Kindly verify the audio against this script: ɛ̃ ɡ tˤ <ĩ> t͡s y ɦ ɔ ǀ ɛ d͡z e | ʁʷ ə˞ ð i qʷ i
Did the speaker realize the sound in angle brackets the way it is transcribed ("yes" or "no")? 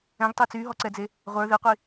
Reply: no